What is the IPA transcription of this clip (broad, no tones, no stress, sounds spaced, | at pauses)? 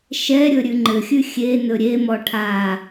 ʃ ɛ ɾʲ ɵ ɾʲ ʉ ŋ͡ǃ ɘ xʲ ʉ xʲ e n ɵ ɾʲ e m ɔ ʈʰ a